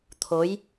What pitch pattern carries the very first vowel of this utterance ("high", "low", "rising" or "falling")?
rising